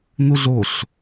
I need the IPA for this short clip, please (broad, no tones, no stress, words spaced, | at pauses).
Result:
nuɮoɬ